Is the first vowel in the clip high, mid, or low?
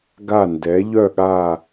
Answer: low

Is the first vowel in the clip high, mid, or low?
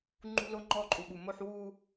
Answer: high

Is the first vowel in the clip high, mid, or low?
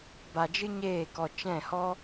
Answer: low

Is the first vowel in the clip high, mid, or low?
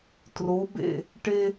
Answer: mid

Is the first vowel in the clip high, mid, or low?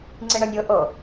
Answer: high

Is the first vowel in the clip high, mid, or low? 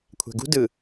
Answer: low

